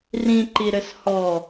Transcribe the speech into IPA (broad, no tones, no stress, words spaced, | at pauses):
rĩǃiɾɘs hɔ